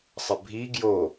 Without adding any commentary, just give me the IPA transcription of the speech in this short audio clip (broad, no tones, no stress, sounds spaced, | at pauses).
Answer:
sˤ ə bʱ i ɡ j o